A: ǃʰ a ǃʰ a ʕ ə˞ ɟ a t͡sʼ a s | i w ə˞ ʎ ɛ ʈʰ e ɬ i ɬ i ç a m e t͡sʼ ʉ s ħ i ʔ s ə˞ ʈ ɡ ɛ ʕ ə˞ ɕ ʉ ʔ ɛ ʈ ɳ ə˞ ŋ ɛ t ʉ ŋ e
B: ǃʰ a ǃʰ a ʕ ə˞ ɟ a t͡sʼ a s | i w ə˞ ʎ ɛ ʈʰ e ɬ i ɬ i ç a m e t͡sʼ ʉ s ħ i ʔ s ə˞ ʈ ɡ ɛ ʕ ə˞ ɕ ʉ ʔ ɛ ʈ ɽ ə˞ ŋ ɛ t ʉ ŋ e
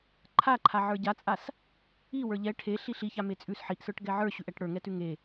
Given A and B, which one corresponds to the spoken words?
B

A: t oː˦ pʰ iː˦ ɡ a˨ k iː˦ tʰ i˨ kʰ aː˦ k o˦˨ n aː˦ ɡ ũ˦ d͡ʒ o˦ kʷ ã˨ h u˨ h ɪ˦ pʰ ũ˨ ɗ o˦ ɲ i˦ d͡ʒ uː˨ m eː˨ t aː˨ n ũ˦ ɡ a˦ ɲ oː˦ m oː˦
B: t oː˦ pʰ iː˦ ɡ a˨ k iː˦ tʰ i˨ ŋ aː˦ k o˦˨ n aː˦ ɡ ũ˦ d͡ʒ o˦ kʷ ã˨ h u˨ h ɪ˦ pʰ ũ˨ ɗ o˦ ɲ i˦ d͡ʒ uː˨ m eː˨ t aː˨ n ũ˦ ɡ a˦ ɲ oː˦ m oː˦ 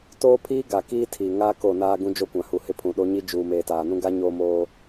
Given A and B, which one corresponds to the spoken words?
B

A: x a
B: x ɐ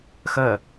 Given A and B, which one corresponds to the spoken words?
B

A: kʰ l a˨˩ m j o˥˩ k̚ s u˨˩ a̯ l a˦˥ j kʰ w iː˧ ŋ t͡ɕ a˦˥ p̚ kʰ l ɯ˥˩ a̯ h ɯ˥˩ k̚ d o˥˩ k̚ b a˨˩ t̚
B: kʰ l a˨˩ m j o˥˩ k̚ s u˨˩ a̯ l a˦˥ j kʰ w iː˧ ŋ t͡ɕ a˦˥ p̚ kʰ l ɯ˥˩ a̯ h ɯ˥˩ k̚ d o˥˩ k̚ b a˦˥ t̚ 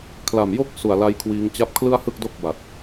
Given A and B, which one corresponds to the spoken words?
A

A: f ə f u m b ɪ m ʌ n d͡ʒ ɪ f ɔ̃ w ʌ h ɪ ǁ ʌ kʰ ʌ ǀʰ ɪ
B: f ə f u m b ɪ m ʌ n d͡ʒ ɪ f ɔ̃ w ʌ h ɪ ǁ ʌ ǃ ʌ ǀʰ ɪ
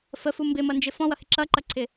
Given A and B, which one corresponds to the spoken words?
B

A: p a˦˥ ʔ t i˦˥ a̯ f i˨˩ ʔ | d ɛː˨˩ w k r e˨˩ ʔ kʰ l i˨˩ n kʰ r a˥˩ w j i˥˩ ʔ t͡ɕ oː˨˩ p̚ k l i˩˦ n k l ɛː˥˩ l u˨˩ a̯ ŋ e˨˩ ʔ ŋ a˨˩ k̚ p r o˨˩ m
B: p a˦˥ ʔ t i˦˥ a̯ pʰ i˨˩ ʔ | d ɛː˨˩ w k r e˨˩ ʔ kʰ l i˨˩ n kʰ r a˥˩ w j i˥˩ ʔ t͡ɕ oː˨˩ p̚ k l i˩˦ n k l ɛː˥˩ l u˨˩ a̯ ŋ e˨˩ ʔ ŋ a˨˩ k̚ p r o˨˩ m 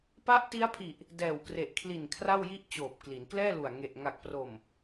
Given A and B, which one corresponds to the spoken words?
B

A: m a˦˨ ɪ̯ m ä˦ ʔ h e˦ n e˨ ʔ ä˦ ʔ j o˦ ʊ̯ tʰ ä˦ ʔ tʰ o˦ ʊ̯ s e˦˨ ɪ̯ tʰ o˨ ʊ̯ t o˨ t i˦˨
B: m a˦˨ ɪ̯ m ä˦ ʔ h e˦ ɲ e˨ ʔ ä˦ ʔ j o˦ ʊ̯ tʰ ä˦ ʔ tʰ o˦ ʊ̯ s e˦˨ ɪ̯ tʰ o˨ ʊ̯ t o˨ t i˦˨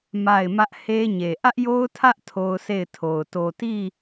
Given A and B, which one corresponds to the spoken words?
B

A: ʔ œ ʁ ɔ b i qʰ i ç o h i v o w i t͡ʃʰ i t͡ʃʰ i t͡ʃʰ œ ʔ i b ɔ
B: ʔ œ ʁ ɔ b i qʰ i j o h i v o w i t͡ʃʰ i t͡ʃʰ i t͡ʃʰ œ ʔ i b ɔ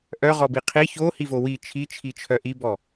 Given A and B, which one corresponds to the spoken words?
A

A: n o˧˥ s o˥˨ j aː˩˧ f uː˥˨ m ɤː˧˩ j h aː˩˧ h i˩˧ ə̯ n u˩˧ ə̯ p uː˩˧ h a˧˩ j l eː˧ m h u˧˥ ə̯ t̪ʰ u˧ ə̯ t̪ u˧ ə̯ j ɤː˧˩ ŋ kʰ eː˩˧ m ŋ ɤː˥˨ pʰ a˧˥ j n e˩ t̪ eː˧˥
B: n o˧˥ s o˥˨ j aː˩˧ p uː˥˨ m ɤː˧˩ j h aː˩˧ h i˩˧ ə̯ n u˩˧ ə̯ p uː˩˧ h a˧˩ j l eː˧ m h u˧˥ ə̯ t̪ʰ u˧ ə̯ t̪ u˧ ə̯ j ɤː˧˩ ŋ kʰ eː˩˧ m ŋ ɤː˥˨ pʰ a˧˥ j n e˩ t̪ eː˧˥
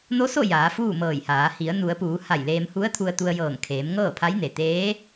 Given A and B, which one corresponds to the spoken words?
A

